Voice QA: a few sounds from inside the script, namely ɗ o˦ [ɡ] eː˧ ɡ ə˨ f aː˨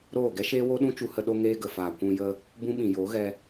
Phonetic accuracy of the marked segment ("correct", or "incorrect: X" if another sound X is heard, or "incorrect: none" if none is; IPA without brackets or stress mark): incorrect: ŋ